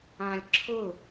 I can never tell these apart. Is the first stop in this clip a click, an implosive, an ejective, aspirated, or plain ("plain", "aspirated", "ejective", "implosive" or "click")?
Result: click